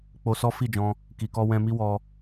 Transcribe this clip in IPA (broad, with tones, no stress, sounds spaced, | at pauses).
k͡p o˧ s ɔ˦ f i˦˨ d͡ʒ ɔ̃˧ | k i˨ k ɔ˧ w ɛ̃˧ m i˦ w ɔ˧